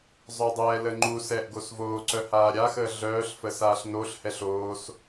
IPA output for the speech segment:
zˤ œ dˤ ɛː l ə ŋ͡ǃ u s ɛː ʔ ɡ o s v oː ǀ œ h aː ɾʲ a x əː ɮ œː ɬ f ə s aː ɬ n o ɬ h ɛ ɬ oː s

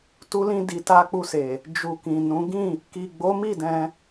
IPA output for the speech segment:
t u˧ l ĩ˧ d i˨ t a˧ k͡p u˧ s e˨ | d͡ʒ u˨ k ĩ˨ n ũ˨˦ ɡ ĩ˦˨ | k i˨ ɡ͡b o˨˦ m i˦˨ d ɛ̃˧

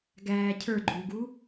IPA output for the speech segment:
ɡ æː cʰ ə˞ ɡ͡ǃ u ɡ u

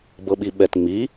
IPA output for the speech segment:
b ɤ ɓ i ɓ ɛ t ŋ͡m i

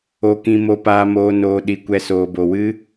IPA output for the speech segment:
o˧ k ĩ˧ m o˧ p aː˧ m oː˧ n oː˧ ɗ i˧ kʷ ɛ˧ s oː˨ b o˨ w ɨ˦

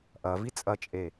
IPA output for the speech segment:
ʔ ɐ v i t͡sʼ ɐ t͡ʃʼ e

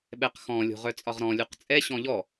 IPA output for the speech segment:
ɓ ɛ q x ɔ̃ lʲ o̤ ʁ œ t͡sʼ ɒ ʁ ɾ ɔ̃ lʲ u q t͡sʼ ɛ ɕ ɔ̃ ʎ ɔ

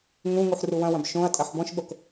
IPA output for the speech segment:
ŋ ũ ŋ u ħ r u w ɐ̃ w ɐ̃ b ʃ õ ɐ̯ tʼ ɐ ħ b ɔ̃ ʃ ɓ o k

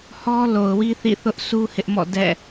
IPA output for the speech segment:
h ɔ˦ l o˨ ʊ̯ w i˦ θ ḭ˦˨ θ ʊ˦ ʔ s u˦ h ɪ˦ ʔ m ɔ̰˦˨ d ɛ̰˦˨

